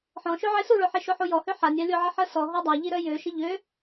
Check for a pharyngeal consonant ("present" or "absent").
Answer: present